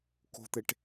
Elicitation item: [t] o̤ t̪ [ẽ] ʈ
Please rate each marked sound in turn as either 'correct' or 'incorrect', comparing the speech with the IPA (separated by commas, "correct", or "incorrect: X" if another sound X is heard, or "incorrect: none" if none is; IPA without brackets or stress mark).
incorrect: k, incorrect: e